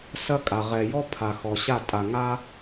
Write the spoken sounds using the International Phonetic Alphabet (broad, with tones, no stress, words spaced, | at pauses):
sɐ˦kʼa˨ ʁɛ˨jɔ˦ pʰa˨xɔ˨ɕa˦˨ tʼa˨ŋa˦